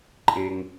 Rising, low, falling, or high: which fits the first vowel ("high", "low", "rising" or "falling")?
high